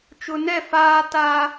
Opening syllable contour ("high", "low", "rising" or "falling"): low